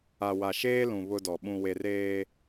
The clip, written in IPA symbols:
a˨ w a˨ ʃ eː˦ l ũ˨ β ʊ˦ d ɔ˨ ɓ ũ˨ w e˨ r eː˦

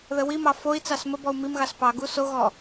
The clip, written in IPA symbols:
ð ə w i m ɑ f o i̯ t͡s ɑ s m ə b ɔ u̯ m i m ɣ ɑ s p ɑ ɡ u s o ɣ ɔ

